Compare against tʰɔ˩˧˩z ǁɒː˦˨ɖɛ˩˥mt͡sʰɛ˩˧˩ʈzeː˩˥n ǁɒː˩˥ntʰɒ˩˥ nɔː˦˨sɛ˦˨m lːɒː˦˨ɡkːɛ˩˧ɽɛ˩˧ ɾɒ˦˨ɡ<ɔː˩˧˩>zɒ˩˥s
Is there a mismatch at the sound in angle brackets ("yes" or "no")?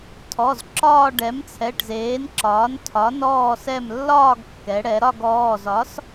no